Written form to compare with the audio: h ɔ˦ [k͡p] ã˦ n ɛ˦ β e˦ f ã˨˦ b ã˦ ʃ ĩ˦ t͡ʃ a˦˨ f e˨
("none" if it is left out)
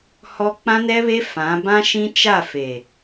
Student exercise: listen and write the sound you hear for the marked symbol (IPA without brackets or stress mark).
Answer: k͡p